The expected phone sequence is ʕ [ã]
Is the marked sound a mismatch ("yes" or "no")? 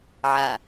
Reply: yes